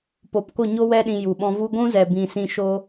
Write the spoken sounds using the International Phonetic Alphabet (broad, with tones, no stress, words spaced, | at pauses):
po˨pko˦˨ ɲo˦wɛ˦ɗĩ˧ ju˨ɓɔ̃˧vu˦ ɡʷũ˦zɛ˨ bĩ˨sĩ˧ʃo˦